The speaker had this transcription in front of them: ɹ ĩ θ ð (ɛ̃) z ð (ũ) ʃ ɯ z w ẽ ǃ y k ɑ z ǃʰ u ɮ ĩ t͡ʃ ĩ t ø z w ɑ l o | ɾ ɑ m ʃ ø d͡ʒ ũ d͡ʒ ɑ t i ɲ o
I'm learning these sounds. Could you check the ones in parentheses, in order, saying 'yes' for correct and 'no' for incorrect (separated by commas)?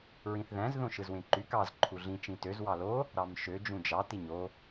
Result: no, no